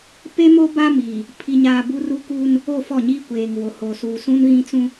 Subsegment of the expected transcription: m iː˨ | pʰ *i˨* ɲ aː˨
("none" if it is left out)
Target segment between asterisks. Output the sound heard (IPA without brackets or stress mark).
i˨